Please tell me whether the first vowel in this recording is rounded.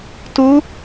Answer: yes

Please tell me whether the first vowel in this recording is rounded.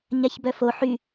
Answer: no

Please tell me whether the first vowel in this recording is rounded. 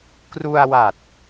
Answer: yes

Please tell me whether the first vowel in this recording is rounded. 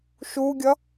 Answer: yes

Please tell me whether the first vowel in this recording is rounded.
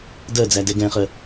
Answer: no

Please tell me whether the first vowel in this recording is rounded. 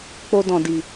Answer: yes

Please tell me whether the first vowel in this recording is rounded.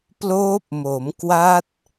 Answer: yes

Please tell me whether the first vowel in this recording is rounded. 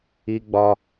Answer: no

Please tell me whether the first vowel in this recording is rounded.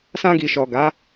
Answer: no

